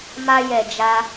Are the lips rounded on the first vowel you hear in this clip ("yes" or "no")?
no